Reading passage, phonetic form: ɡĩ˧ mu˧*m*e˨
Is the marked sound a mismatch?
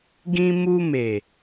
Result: no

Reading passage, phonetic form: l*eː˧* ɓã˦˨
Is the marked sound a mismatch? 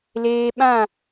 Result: no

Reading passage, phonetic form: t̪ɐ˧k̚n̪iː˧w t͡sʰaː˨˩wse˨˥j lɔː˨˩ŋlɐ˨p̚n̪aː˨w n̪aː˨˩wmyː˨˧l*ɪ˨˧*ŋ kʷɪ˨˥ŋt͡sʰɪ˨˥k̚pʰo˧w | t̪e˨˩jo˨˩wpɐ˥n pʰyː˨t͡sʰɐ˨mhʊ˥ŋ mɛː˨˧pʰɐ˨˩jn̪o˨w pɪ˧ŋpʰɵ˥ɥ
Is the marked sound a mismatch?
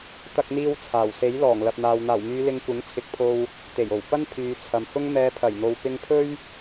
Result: no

